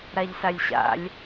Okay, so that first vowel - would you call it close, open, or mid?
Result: open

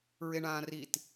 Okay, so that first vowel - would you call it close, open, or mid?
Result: mid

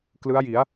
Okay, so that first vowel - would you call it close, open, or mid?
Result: close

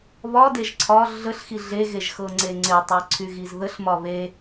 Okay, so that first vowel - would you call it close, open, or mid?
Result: open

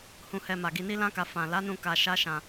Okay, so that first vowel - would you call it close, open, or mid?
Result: close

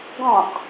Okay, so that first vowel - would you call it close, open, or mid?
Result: mid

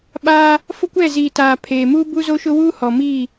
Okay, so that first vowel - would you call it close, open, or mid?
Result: open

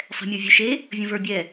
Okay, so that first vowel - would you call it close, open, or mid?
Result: mid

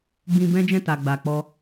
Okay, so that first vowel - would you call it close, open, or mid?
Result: close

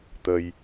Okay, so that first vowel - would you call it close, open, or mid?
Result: mid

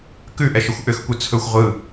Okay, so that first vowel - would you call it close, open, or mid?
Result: close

